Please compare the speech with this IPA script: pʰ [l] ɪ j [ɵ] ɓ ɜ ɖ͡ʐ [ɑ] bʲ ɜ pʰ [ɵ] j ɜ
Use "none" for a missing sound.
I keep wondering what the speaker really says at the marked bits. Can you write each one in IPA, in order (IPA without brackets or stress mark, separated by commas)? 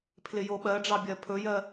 l, o, ɑ, ɵ